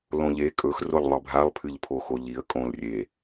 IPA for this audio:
l õ ʎ e kʼ ɵ x r o ʎ ðˤ ɨ bʱ a lˠ pʰ ɨ ʎ pʰ o x o ʎ i ə̯ kʼ õ l rʲ e

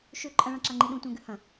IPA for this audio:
ʃ ʉ ǃʼ ɐ̃ ɭ ã ǁ a ŋ͡ǃ i ɗ ũ tʷ ã ɡ ɨ h ɐ̃

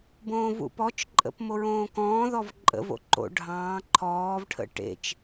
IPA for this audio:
b õː v ṵ p ɔ t͡ʃ ǃʼ ə̰ p m o ɹ õː k ɔ̃ː ð ɔ v ǃʼ ə̰ v o̰ ǃ o̰ ɖʱ ɑ̃ː ǃʰ ɔː v ʈʰ ə̰ ʈ ḛ t͡ʃ

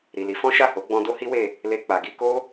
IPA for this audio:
ɾ i˨ l i˨˦ f ɔ̃˦ ʃ a˦˨ h o˨˦ ɡ͡b ɔ̃˧ d o˦ h i˦ w e˦˨ | l e˧ k͡p a˨ ɡ i˧ k o˦

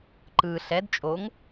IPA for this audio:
ǃ ɯ ɬ ɛ d t͡ʃʼ o ŋ

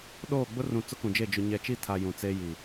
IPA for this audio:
ɗ oː˦˨ ɡ͡b ʊ˦ r ũ˨ t͡s ʊ˦ k ũ˨ d͡ʒ e˦˨ d͡ʒ ʊ˨ ɲ ɛ˨ t͡ʃ i˦˨ tʰ a˨ j ũ˨ t͡s e˦ j i˨

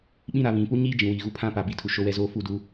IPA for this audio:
ɓ ĩ˦ ɾ a˨˦ β ĩ˨˦ p u˦ ɲ iː˦ d͡ʒ ĩ˨ w iː˨ ɣ u˦ pʰ ã˦ p a˨ b i˨ tʰ u˨ ʃ o˦ w ɛ˦ z oː˦ f u˦˨ d u˦

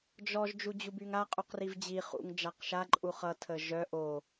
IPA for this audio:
d͡ʒ ɔ ʒ d͡ʒ u d͡ʑ u b y ŋ a qʼ u q r i v d͡ʑ i χ ṵ ŋ d͡ʒ a q ʃ a ǃʼ u χ ʌ tʰ ə ʒ œ ʔ o

